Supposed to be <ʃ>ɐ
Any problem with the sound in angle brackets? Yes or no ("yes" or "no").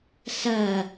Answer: yes